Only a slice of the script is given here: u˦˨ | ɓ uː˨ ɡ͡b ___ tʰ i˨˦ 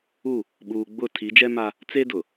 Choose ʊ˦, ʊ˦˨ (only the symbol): ʊ˦˨